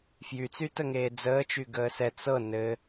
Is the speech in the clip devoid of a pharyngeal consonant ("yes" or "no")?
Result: yes